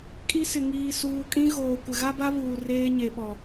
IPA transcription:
kʼ i˦ s ɪ˨ ŋ iː˨ s uː˨ kʼ ĩ˦ ɣ oː˨ kʷ ɪ˨ ɣ a˦ b a˦ β uː˨ r eː˦ ɲ e˨ ɓ ɔ˨

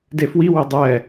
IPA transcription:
d e f w i w e dˤ ɛ

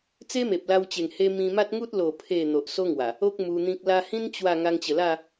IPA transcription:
t͡s e˦ m e˨ p̚ l a˧ w t͡ɕ e˨˩ ŋ h e˧ m ĩ˧ m a˦ t̚ ŋ u˦ t̚ l o˨˩ pʰ e˨˩ n̪ o˨ ʔ s o˦ ŋ w a˨˩ | o˦ k̚ m u˧ n̪ ĩ˦ k̚ l a˧ h ĩ˦ n t͡ɕ w a˥˧ ŋ a˧ ŋ t͡ɕ ə˨˩ l a˥˧

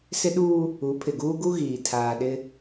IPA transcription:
s ɪ˦ ɗ uː˦ | u˨˦ pʰ ɪ˨ ɡ uː˦ ɡ u˦ ɣ iː˨ tʰ aː˨ ɗ ɪ˦

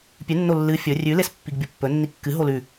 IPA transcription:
pʲ ʉ nː o lː ɨ fʲ ɵ rʲ ʉ l e s pː i ɡ bʲ o pː ɵ nː i kː ɨ ɦ o l ʉ

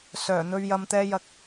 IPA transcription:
s œː˨˩ n̪ ɵ˧ ɥ j ɐ˧ m t̪ ɛː˧ j ɐ˧ k̚

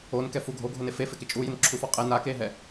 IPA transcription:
o n k ɛ f u ɡʱ o ɡʱ ʊ n e f e f ɪ k ɪ t͡ʃʼ u j ɪ n ǁʰ u f ɔ qʼ e n a k e ɦ ɛ

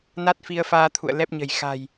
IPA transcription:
n a˦˥ t̚ f i˧ ə̯ f aː˧ t̪ʰ ṵ˧˨ ə̯ l ɛ˦˥ p̚ ɲ ə̤˨˩ j x a̤˨˩ j

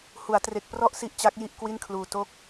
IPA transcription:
h u˩˦ a̯ t r e˨˩ k̚ p r ɔ˥˩ ʔ s i˦˥ ʔ t͡ɕ a˦˥ k̚ j i˥˩ ʔ k w i˥˩ n kʰ l uː˧ t o˦˥ k̚

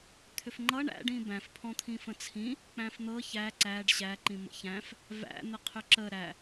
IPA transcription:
t̪ʰ ʏ f ŋ͡ǃ ʌ ɳ æ̰ ɖ ĩ b æ̃ f pʰ ɔ̃ t̪ʰ ĩ f ə̃ t͡sʰ ĩ | k͡p æ̃ f n̪ ɤ ç æ ǀ æ ɖ ɕ æ ǃ ĩ m ə̰ ç æ̃ f | v æ̰ n̪ ə qʰ ʏ ǁ ə ɾ æ

